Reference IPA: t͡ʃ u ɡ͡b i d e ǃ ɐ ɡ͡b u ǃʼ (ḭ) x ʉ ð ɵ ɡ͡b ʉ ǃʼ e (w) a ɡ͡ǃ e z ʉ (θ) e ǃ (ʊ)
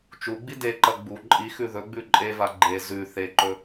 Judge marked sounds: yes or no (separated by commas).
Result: no, no, yes, no